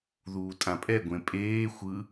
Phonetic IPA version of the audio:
ð uː tʼ ã pʼ ɛ ɡʷ ẽ pʼ eː xʷ ɯ

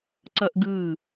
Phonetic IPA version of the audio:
ǀ ʌ ʔ ɡ ɯ

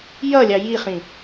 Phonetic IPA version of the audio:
j ʌ lʲ ɑ j i χ ĩ

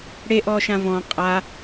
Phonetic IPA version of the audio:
ɽ e ʔ ɔː ʃ ã v ɔ̃ qʼ a

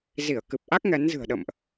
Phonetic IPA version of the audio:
z i˧˩ ə̯ k ɨ˨˩ p̚ ʔ a˦˥ k̚ ŋ ɛ˨˦ n z ɨ̤˨˩ ə̯ ɗ ə̰˧˨ m ʔ

